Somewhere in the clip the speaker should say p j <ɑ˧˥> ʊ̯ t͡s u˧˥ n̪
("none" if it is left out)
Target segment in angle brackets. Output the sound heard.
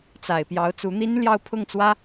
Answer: ɑ˧˥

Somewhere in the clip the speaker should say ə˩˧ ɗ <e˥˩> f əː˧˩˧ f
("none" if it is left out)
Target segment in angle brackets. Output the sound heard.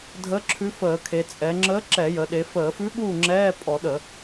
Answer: e˩˧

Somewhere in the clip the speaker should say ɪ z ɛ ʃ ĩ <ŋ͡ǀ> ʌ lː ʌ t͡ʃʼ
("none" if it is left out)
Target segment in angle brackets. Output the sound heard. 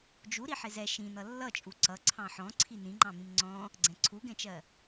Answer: n̪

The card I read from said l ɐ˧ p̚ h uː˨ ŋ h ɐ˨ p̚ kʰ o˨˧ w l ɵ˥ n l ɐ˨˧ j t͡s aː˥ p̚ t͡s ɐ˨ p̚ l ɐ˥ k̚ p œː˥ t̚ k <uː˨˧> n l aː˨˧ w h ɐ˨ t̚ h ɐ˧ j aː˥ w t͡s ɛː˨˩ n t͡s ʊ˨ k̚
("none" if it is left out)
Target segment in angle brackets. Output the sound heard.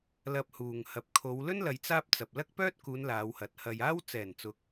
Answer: uː˨˧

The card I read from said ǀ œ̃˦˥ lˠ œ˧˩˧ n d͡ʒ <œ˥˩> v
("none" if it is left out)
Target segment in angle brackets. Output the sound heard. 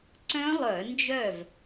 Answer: œ˥˩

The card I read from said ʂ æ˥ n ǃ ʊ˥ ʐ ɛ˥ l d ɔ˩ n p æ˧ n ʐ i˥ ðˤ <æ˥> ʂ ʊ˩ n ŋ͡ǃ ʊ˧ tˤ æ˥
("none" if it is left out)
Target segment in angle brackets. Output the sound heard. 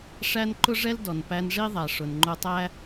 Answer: æ˩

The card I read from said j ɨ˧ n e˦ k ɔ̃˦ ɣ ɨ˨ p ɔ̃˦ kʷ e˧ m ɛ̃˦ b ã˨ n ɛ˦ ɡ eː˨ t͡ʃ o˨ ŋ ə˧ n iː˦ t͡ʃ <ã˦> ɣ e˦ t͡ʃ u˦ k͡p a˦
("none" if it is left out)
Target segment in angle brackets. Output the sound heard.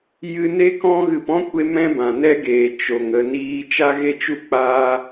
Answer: a˦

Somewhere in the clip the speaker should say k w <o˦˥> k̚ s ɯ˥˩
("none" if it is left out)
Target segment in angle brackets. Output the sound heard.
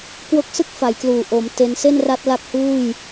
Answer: o˦˥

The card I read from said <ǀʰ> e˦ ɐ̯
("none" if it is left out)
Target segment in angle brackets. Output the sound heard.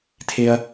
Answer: tʰ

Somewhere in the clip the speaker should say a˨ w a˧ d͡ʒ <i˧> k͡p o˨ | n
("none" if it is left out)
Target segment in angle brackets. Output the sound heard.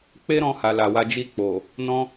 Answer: i˧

